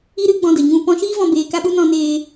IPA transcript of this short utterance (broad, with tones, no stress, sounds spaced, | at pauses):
i˦ ɾ ɨ˦ ɡ͡b ɔ̃˧ d ə˨ ɲ ũ˧ p ɔ̃˧ ʃ iː˦ v ɔ̃˧ b eː˧ k a˦ ɓ u˦ n ɔ̃˦ n eː˦